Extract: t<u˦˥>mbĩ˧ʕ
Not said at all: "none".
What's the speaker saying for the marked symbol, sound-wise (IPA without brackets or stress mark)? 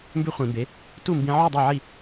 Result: u˥˨